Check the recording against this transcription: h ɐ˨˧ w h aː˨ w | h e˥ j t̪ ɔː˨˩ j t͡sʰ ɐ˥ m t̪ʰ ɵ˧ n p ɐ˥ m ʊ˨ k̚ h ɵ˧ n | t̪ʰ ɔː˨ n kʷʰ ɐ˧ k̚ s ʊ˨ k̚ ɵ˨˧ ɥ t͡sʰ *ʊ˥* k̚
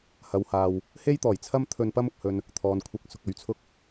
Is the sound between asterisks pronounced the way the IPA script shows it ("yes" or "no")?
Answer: yes